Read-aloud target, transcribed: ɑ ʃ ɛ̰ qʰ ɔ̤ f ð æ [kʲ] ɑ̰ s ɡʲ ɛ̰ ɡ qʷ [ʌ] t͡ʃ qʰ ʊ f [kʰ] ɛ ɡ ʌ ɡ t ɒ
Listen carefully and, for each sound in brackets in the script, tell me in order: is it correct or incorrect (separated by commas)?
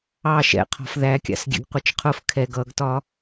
correct, correct, correct